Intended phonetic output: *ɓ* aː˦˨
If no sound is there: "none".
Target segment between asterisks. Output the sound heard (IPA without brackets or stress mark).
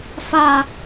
f